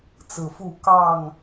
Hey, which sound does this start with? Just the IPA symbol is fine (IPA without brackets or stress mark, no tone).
t͡s